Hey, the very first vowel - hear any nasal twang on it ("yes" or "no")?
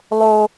no